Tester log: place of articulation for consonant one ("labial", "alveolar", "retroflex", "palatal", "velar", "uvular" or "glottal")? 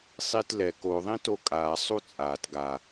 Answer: alveolar